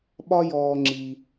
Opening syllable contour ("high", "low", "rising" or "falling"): high